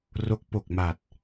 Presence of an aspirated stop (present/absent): absent